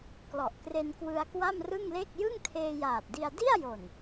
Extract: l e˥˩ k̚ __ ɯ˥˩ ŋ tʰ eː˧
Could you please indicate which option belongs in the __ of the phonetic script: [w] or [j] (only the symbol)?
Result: j